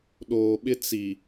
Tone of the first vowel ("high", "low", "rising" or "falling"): low